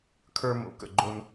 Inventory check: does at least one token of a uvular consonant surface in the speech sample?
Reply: no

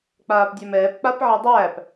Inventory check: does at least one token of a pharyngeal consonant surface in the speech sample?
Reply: yes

